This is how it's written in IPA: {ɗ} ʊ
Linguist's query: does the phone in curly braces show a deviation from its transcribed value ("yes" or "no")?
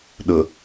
no